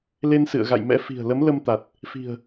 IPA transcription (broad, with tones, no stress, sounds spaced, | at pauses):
l e˧ n s ɨ̰˧˨ ə̯ ɣ a̰˧˨ j m ɛ̰˧˥ f i̤˨˩ ə̯ l ə˨˦ m l ə˧ m t̪ a˨˩ t̚ | f i̤˨˩ ə̯